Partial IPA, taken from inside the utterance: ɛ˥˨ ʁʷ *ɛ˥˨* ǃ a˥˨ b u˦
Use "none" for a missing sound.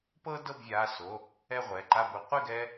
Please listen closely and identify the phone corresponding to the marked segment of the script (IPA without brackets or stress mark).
ɛ˩˧˩